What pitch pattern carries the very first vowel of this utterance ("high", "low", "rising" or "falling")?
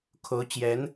rising